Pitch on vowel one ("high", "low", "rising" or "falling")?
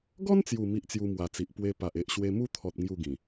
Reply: high